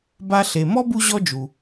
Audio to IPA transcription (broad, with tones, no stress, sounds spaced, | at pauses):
b a˧ ɬ e˩ m ɔ˥ b u˧ ʑ ɔ˧ d͡ʒ u˩